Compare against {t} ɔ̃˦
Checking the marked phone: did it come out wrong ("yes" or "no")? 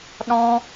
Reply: yes